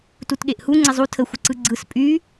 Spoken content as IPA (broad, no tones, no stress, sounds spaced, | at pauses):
t u t ɠ e ʔ h u ŋ͡ǀ ɪ zˤ u tʰ ə xʷ ɪ ǀ ɯ ɡ͡ǀ ɯ s pʼ y